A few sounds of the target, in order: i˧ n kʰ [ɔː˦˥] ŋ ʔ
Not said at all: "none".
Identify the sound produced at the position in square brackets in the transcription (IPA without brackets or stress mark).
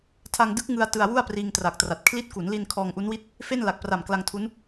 ɔː˧